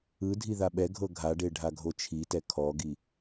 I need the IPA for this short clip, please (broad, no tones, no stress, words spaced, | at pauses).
ɯdʱi ðaɓɛɡʱɤ ɡʱaɖe ɖʱaɡʱot͡ʃʰitɛ kʰɔɡi